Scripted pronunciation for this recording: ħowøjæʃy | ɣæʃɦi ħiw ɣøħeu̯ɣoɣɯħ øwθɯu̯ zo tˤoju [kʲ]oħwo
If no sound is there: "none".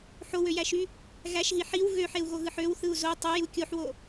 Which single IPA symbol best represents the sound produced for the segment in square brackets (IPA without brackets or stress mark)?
kʲ